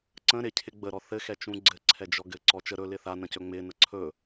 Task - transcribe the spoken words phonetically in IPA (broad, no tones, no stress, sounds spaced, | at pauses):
ǀ ə̃ ɾ ɪ cʰ ɪ ɡ͡b ə ɾ ɔ θ ɘ x ɛ t͡ʃ ũ ɡ͡ǀ ɘ ǀʰ ɛ d͡ʒ ɔ ɡ ɘ ǀ ɔ t͡ʃ ə ɾ ɵ l ɪ θ a n ə̃ c ɵ ŋ͡m ɪ n ə ǀʰ ɵ